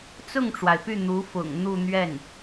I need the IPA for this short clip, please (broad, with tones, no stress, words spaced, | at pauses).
t͡sʊ˥˩ŋʈ͡ʂwa˩ɪ̯py˥˩ n̪u˧˥fʊ̰˨˩ŋ n̪u˥˧n̪ɥɛ˥˩n